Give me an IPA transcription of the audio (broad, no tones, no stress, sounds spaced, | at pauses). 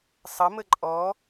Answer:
sˤ ʌ m ə ǃʼ ɔ